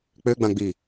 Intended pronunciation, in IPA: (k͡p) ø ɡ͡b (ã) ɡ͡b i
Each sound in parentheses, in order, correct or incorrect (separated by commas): correct, correct